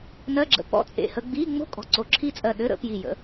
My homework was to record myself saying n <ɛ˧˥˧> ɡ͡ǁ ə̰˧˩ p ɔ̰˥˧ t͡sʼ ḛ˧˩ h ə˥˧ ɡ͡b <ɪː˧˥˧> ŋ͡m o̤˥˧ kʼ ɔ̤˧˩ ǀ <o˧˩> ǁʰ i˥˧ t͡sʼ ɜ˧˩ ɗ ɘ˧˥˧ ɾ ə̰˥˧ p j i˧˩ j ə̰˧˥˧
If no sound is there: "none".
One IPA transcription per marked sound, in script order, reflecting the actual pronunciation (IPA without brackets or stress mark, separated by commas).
ɜ˧˥˧, iː˧˥˧, o˧˩